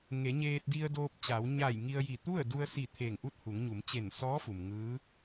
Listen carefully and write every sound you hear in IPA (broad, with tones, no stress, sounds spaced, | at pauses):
ŋ e˩˧ ɲ eː˧ t̚ d i˧ ə̯ d oː˧ p̚ t͡ɕ a˩˧ w ɲ aː˧˩ j ŋ i˧ ə̯ j i˧˩ t̪ u˥˨ ə̯ d u˧ ə̯ s i˧˩ t̪ʰ e˧˩ ŋ ʔ u˥˨ t̚ h u˩˧ ŋ ɲ u˩˧ m t͡ɕ e˧˩ n s ɔː˧˥ f u˩ m ŋ ɯː˧˥